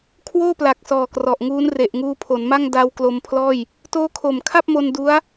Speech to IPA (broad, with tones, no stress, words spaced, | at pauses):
kʰwoː˥˩pla˨˩k̚ sɔː˨˩ krɔ˨˩ʔŋuː˦˥n re˨˩ʔŋuː˧pʰo˩˦nma˥˩ŋ da˧w klo˧mpʰlɔː˥˩j | toː˦˥kʰo˨˩mkʰa˥˩p̚mo˧n du˦˥a̯